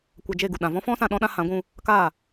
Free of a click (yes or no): yes